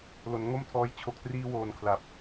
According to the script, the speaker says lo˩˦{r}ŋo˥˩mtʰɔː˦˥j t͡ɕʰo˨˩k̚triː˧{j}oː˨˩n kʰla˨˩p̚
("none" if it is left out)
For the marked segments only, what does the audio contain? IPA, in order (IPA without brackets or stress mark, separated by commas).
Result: n, w